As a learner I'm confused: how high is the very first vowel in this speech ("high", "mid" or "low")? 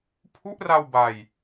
high